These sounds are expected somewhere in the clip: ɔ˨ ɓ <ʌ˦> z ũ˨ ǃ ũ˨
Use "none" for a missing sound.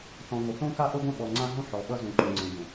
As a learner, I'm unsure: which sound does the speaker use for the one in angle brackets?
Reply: ʌ˦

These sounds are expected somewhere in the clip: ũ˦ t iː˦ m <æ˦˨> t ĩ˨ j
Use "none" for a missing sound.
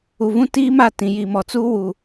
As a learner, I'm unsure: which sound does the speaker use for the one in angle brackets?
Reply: a˦˨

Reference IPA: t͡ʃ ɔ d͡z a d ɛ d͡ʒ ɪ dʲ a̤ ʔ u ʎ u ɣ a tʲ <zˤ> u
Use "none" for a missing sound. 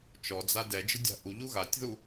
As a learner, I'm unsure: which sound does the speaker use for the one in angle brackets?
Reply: ð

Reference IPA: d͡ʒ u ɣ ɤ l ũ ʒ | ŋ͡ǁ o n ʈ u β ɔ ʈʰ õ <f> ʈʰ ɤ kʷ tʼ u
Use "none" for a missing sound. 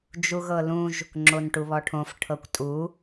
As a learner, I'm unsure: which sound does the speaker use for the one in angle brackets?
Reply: f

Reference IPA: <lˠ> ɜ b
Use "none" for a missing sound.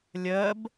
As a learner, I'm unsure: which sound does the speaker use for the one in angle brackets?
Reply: lʲ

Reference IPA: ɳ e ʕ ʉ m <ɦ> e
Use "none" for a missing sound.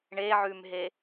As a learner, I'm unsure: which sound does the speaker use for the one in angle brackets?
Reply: ɦ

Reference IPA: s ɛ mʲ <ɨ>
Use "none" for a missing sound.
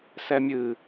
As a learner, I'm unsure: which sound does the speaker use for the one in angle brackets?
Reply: ɨ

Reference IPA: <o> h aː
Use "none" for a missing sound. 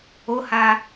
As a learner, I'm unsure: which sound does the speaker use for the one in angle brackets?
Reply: o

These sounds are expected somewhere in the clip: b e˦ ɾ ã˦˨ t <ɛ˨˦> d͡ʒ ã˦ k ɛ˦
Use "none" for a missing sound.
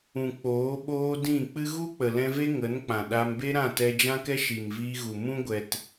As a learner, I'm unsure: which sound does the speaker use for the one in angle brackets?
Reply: ɛ˧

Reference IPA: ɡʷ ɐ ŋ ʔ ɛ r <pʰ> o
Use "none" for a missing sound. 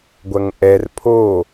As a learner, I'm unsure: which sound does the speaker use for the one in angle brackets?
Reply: pʰ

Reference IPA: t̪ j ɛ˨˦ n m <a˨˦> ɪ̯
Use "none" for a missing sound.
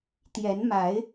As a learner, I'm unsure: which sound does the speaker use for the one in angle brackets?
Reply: a˨˦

